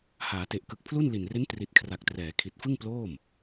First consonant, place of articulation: glottal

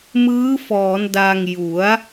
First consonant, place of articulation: labial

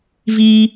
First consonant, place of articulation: labial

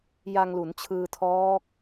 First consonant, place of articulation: palatal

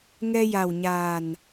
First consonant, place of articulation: velar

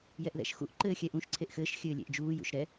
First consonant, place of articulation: palatal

